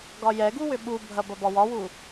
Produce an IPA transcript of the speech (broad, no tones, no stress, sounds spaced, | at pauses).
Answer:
ɡ ɒ j ɛ ɡ u w ʏ ɓ u bʱ ɐ b ɐ b ɒ w ɒ w u